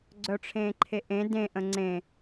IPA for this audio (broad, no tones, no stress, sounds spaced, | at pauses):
ɡ͡ǀ œ ʈ͡ʂʰ ẽː ǃʰ e ʔ ẽ d ẽ ʔ ə̃ ŋ͡ǀ ẽ